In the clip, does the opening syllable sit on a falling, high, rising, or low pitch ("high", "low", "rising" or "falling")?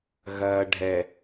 low